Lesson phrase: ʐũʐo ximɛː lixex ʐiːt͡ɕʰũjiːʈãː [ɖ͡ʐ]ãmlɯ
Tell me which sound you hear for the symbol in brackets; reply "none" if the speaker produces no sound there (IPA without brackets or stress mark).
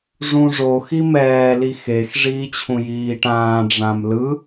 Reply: ɖ͡ʐ